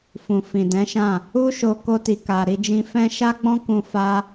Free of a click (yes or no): yes